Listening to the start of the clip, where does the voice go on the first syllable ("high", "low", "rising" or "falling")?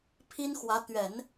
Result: high